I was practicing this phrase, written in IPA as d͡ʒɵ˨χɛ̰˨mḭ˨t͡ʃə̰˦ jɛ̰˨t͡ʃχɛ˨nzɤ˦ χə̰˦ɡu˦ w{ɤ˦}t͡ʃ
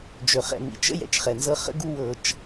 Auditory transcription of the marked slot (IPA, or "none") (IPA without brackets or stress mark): ɤ˦